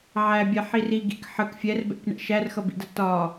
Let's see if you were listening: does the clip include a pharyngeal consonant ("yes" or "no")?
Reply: yes